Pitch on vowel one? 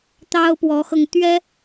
high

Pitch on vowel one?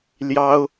high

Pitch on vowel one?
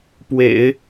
low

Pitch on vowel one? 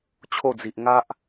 falling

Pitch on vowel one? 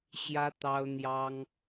high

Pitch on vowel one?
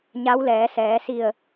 rising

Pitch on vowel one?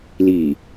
low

